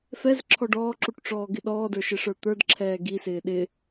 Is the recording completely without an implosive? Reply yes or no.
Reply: no